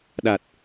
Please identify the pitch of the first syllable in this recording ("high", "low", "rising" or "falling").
low